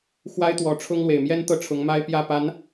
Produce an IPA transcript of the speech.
x w a˥ ɪ̯ t̪ w ɔ˧˥ ʈ͡ʂʰ ʊ˥ ŋ l w e˨˩ ɪ̯ m j ɛ˥ n t̪ ɤ˥˩ ʈ͡ʂʰ ʊ˧˥ ŋ m a˥ ɪ̯ p j ä˥˩ p a˧˥ n

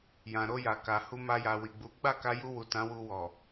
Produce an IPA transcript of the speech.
j ã˨ ɾ o˧ j a˨ k a˨ h u˧ m a˧ j a˨ w i˨ ɡ͡b u˨˦ ɡ͡b a˦˨ k a˧ j u˧ w u˨ t ã˨˦ w u˧ w ɔ˨

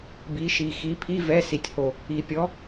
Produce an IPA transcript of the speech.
b i˨˦ ʃ i˨˩ x i˨˦ pʰ i˧˥˧ v ɛ˧˥˧ s i˨˩ tʲ h o˨˩ | i˨˩ pʲ ɔ˨˦

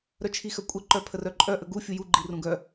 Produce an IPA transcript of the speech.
ɾ œ t͡ʃʰ i x œ kʷʼ ɐ ǃ œ pʰ ə r œ ǃʼ œ ʔ ə ɡ u fʲ u j u ɡ͡ǃ i r ũ ɡ œ

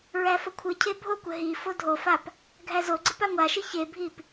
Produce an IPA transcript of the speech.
ɹ æ f ə kʷʰ ɨ cʰ e bʱ o kʷ ə ɦ i f o dʱ o f a p | ɡʱ æ z o ɡ͡ǀ ɨ p a ŋʷ a ʃ ɨ ç e bʱ i p

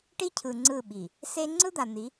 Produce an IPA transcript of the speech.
ʈ i˦ cʰ ɯ˨ ŋ͡ǀ ɯ˦˨ ɓ i˨ | s e˦ ŋ͡ǀ ɯ˦ d̪ a˨ n̪ i˨˦

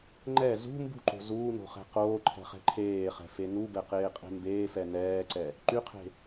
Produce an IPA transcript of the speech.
ŋ͡ǃ ɛ z ṳ m b ṳ ǃ o̤ z uː n o̤ χ ɛ̤ q oː ǃʰ ɛ̤ χ ɛ̤ ǃʰ eː χ ɛ̤ f e n u b ɛ q eː qʼ e̤ m b eː f ɛ n ɛː ǀ ɛ | ǃ y qʰ e̤

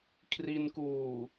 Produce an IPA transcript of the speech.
kʰ r i˧ n k uː˨˩

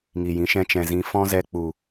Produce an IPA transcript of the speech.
ŋ i˨ j ĩ˨˦ ʃ ɛ̃˧ t͡ʃ ɛ̃˨ z ĩ˨˦ f ɔ̃˦ z ɛ˧ k͡p u˨

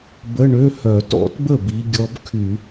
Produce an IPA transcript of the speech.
b ə˧˥˧ ɳ ø˧˥˧ h œ˧˩˧ t ɔ̰˧˩˧ t b ə˥˩ b i˧ ɡʲ ɔ˧˥ b kʰ y˧˩˧

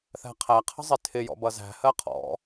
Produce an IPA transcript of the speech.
θ æ̤ qʰ æ qʰ ə̤ zˤ ɪ tʰ ɪ j ɔ̰ b ʌ z æ̤ h ɜ qʰ ɔ̰

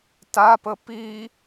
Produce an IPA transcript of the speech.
t a p ə p i

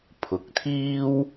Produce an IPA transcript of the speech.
pʰ ʊ˨ k̚ t̪ʰ iː˥ w

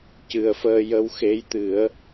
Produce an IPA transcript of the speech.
c ɨ˨˩ ə̯ f əː˧ j ə˧ w x e˧˥ j t̪ ɨ˨˩˦ ə̯

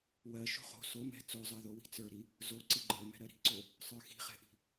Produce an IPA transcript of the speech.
w ɜ ʃ o̤ χ o̤ s o m ɛ̤ t͡s o zˤ ɜ ð o w i̤ t͡s ə˞ ɾ i | z o ǀ i ɡ͡ǃ ə˞ m ɛ̤ ɾ ɜ ɾ i̤ ǀ o | sˤ ə˞ x i̤ χ ɛ̤ ʔ i̤

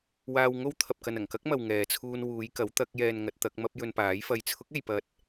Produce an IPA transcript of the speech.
w aː˧ w ŋ o˥ w t̪ʰ ɐ˨ p̚ k ɐ˨ n ɐ˨˩ ŋ k ɐ˥ k̚ m ɐ˨ w ŋ ɛː˨ t͡sʰ uː˧ n w uː˨˧ j k ɐ˨˥ w t̪ ɐ˨˥ k̚ j ɛː˧ n ŋ ɐ˨˥ t̚ t̪ ɐ˨˥ k̚ m ɐ˧ p̚ j ɵ˧ n p aː˨˥ j f ɐ˧ j t͡sʰ ʊ˨˥ k̚ e˨ j p ɐ˨ t̚

